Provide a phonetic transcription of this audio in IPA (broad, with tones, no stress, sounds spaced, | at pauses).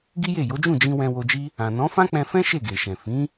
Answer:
ɡ i˦ j e˦˨ j o˨˦ d͡ʒ ũ˦˨ d͡ʒ ĩ˧ w ɛ̃˧ w o˧ d͡ʒ i˦ | ã˨ n ɔ̃˨˦ f ã˦ k͡p ɛ̃˧ f ɛ̃˦ ʃ e˦˨ ɡ e˨ ʃ ɛ̃˨ f ĩ˨˦